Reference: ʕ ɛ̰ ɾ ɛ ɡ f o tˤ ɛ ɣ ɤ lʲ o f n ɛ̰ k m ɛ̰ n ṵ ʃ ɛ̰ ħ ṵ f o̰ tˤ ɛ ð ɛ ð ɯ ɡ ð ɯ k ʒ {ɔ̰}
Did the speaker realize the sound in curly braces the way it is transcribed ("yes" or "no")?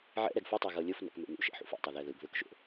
no